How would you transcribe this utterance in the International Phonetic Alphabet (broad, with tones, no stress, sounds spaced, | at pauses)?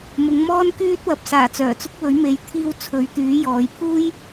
m ʊ˨˧ ŋ m ɔː˥ n k yː˥ t̚ w ɐ˨ p̚ s aː˨˩ t͡s œː˨˩ t͡s ʊ˥ k̚ w ɵ˨˥ ɥ m e˨˧ j t̪ʰ iː˧ w t͡sʰ ɵ˨˥ ɥ t̪ yː˨˥ j ɔː˨˧ j pʰ uː˥ j